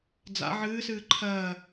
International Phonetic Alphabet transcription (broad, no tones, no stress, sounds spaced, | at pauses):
d͡z a̰ ʕ ɨː s ɨː ǃʰ ɜː